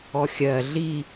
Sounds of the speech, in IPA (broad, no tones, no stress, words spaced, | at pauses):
ɔxʲɜ ɮi